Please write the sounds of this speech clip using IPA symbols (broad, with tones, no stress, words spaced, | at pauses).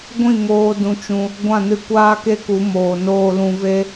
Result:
ɡʷĩ˦˨ŋoː˧ dũ˧t͡ʃũ˧ | ɡʷã˦˨nɨ˧kʷaː˦ ke˦ku˨˦moː˨ noː˧lũ˧ve˦